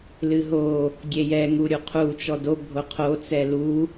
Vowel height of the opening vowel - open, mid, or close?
close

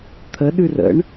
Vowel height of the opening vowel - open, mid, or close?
mid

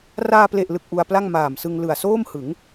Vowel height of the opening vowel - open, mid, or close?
open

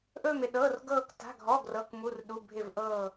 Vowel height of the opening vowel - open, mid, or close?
mid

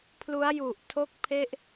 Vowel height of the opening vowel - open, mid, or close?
close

